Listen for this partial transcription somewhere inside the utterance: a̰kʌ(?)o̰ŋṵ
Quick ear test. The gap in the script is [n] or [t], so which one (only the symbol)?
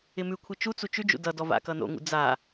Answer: n